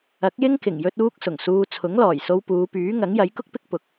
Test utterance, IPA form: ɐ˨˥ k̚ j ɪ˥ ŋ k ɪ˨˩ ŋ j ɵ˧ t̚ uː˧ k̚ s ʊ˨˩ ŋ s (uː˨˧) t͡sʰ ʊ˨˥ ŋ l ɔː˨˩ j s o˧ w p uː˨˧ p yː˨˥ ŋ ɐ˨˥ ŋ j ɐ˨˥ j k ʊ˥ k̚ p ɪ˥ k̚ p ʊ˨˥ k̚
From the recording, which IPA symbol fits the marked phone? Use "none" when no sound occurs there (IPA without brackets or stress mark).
uː˧